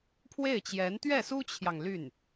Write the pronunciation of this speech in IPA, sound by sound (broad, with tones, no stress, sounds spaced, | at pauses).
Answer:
pʰ w e˥˩ ɪ̯ t͡ɕ j ɛ˧˥ n t̪ ɥ ɛ˥˩ s u˥ t͡ɕʰ j ɑ˨ ŋ l y˥˩ n